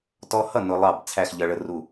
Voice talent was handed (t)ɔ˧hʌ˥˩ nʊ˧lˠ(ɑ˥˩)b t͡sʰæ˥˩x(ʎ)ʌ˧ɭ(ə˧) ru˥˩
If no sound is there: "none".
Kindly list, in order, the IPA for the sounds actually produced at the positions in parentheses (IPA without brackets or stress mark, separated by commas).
t, ɑ˥˩, ʎ, ə˧